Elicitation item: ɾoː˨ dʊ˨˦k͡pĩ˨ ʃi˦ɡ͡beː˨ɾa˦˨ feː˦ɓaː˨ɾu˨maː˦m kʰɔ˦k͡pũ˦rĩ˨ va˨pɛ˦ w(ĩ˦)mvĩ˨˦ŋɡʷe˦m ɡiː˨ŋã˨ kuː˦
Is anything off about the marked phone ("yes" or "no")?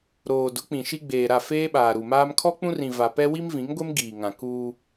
yes